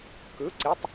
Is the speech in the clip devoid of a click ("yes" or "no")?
no